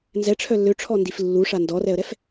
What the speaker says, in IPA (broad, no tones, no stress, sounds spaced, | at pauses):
n z ɛ ʈ͡ʂʰ œ lː ø ʈ͡ʂʰ ɔ n d i f lː u ʂ a n d ɔ r ɛ ə̯ ɾ ɛ f